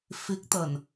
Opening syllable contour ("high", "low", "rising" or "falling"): rising